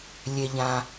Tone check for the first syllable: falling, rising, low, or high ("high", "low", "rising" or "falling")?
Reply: low